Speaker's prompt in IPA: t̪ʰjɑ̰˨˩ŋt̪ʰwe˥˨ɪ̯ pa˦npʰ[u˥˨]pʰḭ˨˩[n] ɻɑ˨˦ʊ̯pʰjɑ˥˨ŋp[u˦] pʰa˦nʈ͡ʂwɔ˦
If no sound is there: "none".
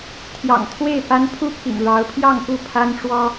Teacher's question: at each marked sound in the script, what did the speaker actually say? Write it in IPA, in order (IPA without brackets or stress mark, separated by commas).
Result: u˥˨, ŋ, u˥˨